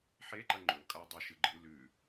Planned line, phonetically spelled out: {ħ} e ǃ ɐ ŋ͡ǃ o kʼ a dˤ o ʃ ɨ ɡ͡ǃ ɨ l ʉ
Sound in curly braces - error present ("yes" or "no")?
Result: no